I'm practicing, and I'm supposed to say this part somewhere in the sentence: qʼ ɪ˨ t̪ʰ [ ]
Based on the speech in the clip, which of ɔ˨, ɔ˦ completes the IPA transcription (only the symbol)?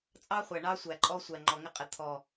ɔ˨